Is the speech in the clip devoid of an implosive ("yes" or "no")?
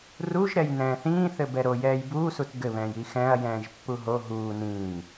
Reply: yes